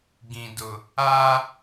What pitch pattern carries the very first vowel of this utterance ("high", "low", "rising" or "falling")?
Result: low